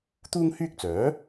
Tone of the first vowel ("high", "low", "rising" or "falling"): high